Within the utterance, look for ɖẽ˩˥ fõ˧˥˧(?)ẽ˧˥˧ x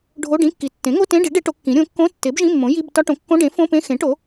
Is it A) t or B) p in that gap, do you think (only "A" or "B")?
B